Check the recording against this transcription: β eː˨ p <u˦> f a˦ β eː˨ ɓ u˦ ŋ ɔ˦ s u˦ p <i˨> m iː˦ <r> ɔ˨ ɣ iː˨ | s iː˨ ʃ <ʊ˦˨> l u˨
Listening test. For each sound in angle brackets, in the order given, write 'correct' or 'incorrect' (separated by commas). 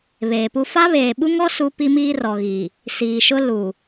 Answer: correct, incorrect, correct, incorrect